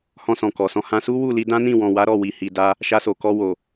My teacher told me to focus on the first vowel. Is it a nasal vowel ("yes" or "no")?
yes